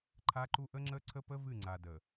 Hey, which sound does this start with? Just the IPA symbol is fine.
ǃʰ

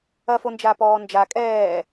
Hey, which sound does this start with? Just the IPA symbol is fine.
ɐ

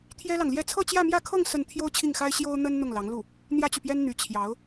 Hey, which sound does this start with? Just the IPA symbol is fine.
t̪ʰ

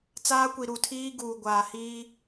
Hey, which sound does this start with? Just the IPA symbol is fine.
t͡s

